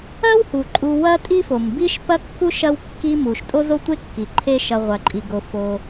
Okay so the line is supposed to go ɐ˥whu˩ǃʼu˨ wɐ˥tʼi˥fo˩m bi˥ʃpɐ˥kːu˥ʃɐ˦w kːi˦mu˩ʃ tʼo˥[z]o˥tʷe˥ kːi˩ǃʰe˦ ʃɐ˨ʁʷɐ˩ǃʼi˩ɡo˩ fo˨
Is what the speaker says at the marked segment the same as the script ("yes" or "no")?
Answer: yes